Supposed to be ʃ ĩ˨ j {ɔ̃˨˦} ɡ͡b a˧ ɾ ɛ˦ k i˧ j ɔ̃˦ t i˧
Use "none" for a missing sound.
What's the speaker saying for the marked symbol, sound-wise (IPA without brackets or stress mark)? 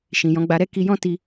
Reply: ɔ̃˨˦